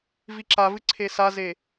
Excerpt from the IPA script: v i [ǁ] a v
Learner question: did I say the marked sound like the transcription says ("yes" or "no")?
yes